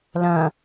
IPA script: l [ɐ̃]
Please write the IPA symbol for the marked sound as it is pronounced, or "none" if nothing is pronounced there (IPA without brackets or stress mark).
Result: ɐ̃